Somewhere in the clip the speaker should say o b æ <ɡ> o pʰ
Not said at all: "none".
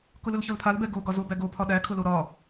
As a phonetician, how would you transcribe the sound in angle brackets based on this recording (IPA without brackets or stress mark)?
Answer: ɡ